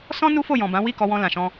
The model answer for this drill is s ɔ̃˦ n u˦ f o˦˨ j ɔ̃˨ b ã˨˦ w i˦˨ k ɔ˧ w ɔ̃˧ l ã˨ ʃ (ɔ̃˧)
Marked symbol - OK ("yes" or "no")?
yes